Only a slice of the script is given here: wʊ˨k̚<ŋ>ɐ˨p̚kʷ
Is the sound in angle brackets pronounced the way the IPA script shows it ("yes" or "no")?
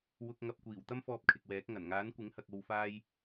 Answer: yes